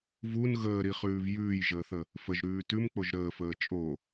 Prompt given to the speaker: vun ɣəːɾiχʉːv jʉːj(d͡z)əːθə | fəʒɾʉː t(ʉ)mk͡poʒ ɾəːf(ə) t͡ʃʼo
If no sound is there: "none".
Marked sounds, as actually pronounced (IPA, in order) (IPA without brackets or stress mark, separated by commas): ʒ, ʉ, əː